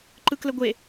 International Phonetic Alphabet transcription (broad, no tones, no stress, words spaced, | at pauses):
ǃɯkləɡʷe